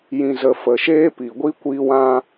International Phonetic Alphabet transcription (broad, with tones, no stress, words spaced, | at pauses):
jĩ˨zə˨ fə˨ʃeː˦ pi˨ɡʷi˦ kʷiː˧wã˧